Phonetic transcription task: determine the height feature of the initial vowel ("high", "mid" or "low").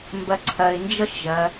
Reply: low